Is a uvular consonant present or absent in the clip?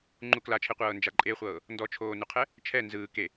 present